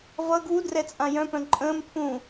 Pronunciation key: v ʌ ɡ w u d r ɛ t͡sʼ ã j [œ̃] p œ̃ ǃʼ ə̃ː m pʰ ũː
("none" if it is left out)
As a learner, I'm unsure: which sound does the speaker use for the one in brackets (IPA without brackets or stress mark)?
œ̃